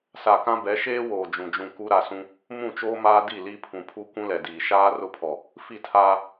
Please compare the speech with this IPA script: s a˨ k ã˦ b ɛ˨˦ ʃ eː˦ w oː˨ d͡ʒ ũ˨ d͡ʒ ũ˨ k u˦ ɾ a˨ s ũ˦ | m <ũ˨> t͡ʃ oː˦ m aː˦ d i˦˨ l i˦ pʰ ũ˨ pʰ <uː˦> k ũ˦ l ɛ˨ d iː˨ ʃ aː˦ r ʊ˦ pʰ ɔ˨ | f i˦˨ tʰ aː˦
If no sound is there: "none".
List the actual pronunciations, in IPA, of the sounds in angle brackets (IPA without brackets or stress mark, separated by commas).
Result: ũ˦˨, u˦